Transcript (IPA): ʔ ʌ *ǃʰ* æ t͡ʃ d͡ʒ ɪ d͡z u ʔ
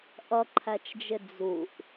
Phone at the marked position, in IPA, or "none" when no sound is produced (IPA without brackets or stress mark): ǃʰ